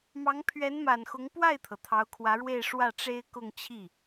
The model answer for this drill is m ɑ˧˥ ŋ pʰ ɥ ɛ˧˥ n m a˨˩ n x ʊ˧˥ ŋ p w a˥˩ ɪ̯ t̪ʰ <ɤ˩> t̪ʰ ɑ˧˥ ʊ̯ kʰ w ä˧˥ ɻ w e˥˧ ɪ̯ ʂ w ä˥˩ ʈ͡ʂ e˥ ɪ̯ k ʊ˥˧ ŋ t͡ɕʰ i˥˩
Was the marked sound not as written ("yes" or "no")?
no